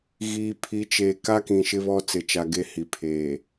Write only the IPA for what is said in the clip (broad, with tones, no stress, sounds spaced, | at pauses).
ɣ iː˨ pʰ i˨˦ t͡ʃ eː˨ k a˦ k ĩ˨ ʃ ɪ˦ β ɔ˦ t͡s ɪ˨ t͡ʃ a˨ ɡ e˦ h i˨ pʰ eː˨